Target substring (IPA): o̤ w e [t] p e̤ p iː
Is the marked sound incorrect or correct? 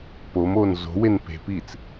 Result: incorrect